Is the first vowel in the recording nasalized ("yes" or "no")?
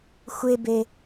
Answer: no